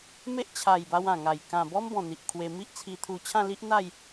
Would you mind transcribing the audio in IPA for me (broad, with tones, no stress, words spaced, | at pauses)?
me˦ʔt͡ɕʰa˨˩jba˧w ã˨˩ŋa˨˩j kã˨˩bɔ˦mbɔ̃˨˩ n̪i˨ʔkʰwe˧ mi˦ʔt͡sʰi˧t̪ʰu˧ t͡ɕʰã˥˧li˦ʔ n̪a˥˧j